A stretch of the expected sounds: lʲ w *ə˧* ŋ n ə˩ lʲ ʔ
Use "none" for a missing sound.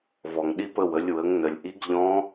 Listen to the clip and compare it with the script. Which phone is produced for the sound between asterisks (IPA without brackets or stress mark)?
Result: ə˩˧